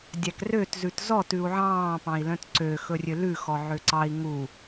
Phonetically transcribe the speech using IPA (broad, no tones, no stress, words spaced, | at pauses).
dʲækrøt zʉtzɔ tʉu̯ʕɑ̃ː pɑ̃i̯lœ̃tǀø xɵrʲølʉ xɔʕøǀɑi̯ ŋu